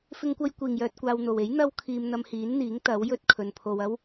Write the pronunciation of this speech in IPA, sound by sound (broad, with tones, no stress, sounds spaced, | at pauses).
f ɪ˧ ŋ kʷ ɐ˧ j kʷ iː˨˩ ŋ j œː˨ t̚ kʷ aː˨ w n̪ o˨˩ w e˨˥ j n̪ ɐ˥ w kʰ iː˧ m n̪ ɐ˧ m h iː˨˥ n n̪ iː˨˥ ŋ t̪ ɐ˨˥ w j ɵ˥ t̚ kʰ ɵ˨ n pʰ o˨ w ɐ˥ w